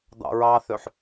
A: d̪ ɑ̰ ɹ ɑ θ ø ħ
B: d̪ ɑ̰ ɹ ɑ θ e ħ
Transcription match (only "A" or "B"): A